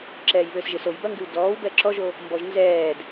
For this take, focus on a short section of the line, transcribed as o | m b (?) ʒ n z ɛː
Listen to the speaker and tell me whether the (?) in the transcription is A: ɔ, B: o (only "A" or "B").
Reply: A